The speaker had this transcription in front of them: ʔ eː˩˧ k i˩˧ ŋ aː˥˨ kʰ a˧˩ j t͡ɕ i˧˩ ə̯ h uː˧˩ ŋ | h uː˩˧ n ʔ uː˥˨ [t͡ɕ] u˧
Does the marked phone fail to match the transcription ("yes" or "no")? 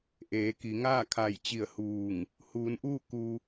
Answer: yes